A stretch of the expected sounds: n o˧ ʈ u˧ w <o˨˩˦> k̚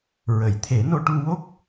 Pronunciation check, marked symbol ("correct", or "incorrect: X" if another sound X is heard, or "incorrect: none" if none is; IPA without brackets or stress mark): incorrect: o˦˥